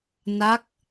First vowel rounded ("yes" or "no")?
no